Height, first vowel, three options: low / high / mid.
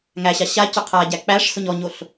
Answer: low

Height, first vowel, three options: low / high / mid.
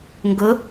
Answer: high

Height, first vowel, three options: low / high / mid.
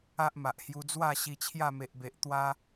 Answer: low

